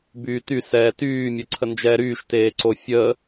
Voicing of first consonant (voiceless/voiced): voiced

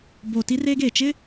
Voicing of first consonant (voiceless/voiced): voiced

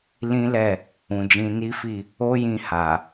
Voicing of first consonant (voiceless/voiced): voiced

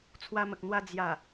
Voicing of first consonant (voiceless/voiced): voiceless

